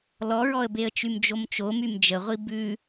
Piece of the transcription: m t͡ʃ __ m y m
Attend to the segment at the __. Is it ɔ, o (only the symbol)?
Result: o